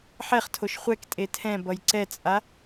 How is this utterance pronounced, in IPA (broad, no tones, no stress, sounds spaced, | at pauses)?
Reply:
ħ ɛ χ tʰ o ʃ χʷ ɛ k tʼ e tʰ ɛ̃ b ʌ j ǀ ɛ t͡sʼ a